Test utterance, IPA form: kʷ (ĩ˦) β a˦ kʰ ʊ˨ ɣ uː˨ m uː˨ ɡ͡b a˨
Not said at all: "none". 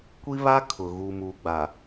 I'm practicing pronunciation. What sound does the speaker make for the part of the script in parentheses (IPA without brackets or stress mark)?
i˦